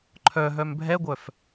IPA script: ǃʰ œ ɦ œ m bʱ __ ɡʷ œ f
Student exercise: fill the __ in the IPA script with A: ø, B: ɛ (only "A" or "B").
B